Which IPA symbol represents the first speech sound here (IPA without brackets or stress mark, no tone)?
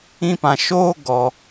ĩ